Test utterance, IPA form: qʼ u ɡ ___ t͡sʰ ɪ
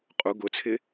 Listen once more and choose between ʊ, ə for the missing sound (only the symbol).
ʊ